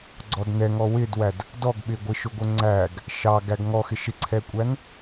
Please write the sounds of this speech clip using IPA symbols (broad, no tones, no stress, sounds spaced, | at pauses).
ɡ͡ǀ ɔ d n ɛ ŋ ɔ w ɪ d w æ d | d ɔ ɡ ɓ ɪ ɡʷ ɪ ʃ ʊ ɡʷ ə ŋ͡ǀ æ ɡ | ʃ ɑ ɡ æ ɡ ŋ ɔ x ɪ ʃ ɪ ǀʰ ɛ kʷʼ æ n